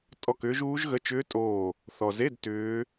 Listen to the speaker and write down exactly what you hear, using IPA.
tʼ ɔ˦˨ k ʏː˦˥ ʒ uː˦˥ ʒ ɣ ə˧˥˧ t͡ʃ ʏː˦˥ tʼ oː˦˨ | θ ɔ˨ z e˧˥˧ d t ʏː˦˥

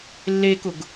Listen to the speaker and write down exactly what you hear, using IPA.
lː e k ʊ ɡ

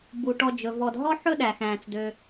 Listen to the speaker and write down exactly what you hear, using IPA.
b u˩ ʈ ɔ˨ d͡ʒ ɵ˩ v ɔ˨ d ɦ ɔ˥ ħ ɵ˥ ɗ æ˩ x æ̃ː˩ t͡s d ø˨

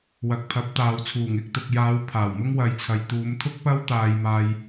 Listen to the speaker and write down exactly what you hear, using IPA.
w ɐ˨ k̚ pʰ ɐ˨˥ p̚ t̪ aː˨ w t͡sʰ uː˨˩ ŋ ɪ˧ k̚ t̪ ʊ˨ k̚ j aː˨˧ w pʰ aː˨˩ w m ʊ˥ ŋ w ɐ˨ j t͡sʰ ɐ˨ j t̪ uː˨˧ m t̪ʰ ʊ˥ k̚ p ɐ˥ w t̪ aː˧ j m aː˧ j

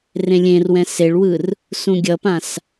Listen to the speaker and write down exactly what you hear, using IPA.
r ẽ lʲ ẽ r w ɛ̃ s e ɭ w ɯ r | s ũ ɡʲ ʌ p ã s

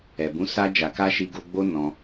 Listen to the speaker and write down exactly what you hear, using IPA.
ɛ˨ b ũ˨˦ s a˧ d͡ʒ a˨ k a˧ ʃ i˧ ɡ o˧ ɡ͡b o˦ n ɔ̃˧

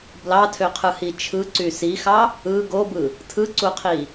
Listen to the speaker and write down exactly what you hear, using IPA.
b l ɑ tʰ ø qʰ ɯ h i t͡ʃʰ ɯ ǀ y s i x ɑ | ɯ ɡ o b ɯ | tʰ ɯ ǀ u qʰ i

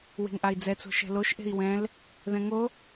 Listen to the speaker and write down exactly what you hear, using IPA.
w e̤ ŋ ʔ a i̯ d͡z ɛ t͡s o̤ ʃ ɛ̤ l o ʃ ʔ e̤ i̯ w ɛ̃ l | ð ɛ̃ ŋ o

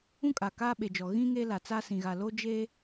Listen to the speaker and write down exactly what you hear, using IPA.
ũ˦ kʼ a˨ k aː˦ ɓ e˨ d͡ʒ ɔ˨ ɣ ĩ˦ ŋ e˦ l a˨ t͡s a˦ s ĩ˨ ɣ a˨ l oː˦ d͡ʒ e˦

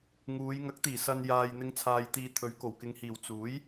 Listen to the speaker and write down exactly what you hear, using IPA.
ŋ uː˨˧ j ŋ ɐ˨˥ k̚ t̪ iː˨˩ s ɐ˨ n j aː˨ j n̪ ɪ˨˧ ŋ t͡sʰ aː˨ j t̪ iː˨ t̪ʰ ɵ˨˥ ɥ k o˨˩ w k ɪ˨ ŋ h iː˨˩ w t͡s uː˨˥ j

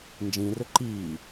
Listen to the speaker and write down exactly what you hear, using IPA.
n d͡ʒ ĩ r ɵ ǃ iː

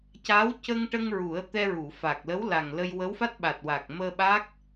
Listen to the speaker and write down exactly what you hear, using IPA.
c a˧˥ w c ə˧ ŋ ʈ ə˧ ŋ ɹ u˨˩˦ ə̯ t̪ ɛ˧ ɹ u˨˩˨ f a˨˩ k̚ l ə˧˥ w l a˨˩ ŋ l ə˧ j w ə˧˥ w f a˦˥ t̚ ɓ a˨˩ t̚ w a˨˩ k̚ m əː˧ ɓ a˦˥ k̚

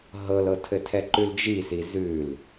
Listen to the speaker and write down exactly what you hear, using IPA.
ɦ ɤ l ɤ tʰ ɘ tʰ ɛ ǃ ʉ l d͡ʒ i s i z ʉ l

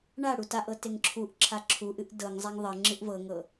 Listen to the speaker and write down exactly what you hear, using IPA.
ɳ a ɽ u t a ʔ ɤ t e ŋ ǁʰ u ʔ ǁʰ a ǁʰ u ʔ ɨ ʔ d ɤ ŋ zˤ a ŋ ðˤ ɤ ŋ͡ǁ ɨ ʔ v ɤ ŋ ɤ

